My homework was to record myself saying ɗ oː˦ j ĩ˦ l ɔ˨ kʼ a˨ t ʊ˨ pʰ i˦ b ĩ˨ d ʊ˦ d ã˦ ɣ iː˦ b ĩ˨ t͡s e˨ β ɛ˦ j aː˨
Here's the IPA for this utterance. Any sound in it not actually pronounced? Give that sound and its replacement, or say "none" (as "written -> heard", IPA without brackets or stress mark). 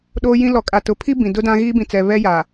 e˨ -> ɛ˨